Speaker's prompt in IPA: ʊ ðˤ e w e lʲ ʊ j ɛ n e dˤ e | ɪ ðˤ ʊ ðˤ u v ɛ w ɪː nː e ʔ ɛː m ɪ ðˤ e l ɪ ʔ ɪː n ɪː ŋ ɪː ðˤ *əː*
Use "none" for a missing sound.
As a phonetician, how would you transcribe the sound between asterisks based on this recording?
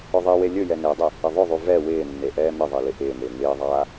aː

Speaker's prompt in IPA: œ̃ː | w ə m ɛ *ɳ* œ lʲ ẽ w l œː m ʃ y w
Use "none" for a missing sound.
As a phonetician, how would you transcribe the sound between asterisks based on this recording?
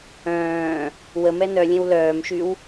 n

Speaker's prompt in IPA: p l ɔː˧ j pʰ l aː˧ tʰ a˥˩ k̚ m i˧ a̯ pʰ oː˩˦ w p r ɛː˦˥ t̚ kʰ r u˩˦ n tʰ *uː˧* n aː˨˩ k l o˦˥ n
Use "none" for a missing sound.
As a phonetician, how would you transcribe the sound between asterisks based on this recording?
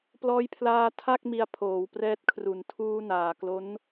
uː˧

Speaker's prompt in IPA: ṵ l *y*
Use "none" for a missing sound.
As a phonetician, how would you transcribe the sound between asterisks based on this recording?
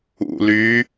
y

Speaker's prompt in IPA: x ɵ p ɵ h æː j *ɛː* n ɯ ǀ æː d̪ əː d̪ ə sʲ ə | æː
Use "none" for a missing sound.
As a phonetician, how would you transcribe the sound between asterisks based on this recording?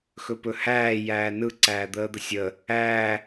æː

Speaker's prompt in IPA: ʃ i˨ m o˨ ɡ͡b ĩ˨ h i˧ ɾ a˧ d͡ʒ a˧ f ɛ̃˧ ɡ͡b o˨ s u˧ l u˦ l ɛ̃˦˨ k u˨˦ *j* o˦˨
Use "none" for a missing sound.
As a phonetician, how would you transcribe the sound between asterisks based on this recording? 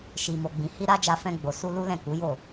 j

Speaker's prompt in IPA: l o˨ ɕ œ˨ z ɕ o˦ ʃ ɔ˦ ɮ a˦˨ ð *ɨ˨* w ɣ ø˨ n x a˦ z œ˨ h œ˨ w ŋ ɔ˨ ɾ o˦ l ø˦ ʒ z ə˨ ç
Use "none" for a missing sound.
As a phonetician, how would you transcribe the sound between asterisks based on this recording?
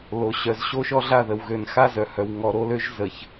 ə˨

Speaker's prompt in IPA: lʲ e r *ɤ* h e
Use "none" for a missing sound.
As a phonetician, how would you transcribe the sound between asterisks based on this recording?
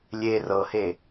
ɤ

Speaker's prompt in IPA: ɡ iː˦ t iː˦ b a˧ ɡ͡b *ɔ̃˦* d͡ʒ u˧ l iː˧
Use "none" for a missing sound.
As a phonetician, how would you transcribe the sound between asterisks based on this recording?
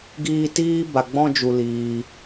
ɔ̃˦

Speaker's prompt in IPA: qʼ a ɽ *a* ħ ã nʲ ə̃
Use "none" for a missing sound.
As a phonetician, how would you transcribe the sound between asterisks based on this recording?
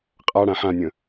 ã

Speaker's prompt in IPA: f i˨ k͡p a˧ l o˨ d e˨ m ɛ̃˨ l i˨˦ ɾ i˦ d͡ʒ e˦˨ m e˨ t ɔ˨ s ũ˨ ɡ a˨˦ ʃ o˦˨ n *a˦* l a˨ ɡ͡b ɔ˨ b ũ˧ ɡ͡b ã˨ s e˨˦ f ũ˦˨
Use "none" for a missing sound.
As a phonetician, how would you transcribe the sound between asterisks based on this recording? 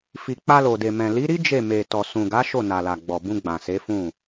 a˨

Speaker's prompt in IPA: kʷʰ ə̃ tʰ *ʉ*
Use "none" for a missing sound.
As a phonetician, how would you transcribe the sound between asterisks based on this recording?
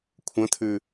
ʉ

